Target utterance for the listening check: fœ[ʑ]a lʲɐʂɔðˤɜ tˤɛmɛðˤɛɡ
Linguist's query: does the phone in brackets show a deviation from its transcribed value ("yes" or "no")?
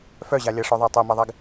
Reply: no